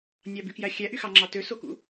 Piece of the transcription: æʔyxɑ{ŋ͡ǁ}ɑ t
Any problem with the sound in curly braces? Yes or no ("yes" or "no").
no